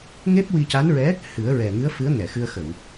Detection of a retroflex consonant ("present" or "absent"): absent